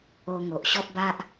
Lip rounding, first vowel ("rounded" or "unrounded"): rounded